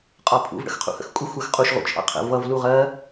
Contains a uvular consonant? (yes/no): yes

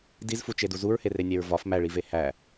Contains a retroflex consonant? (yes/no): yes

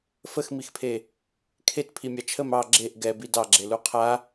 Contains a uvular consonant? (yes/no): yes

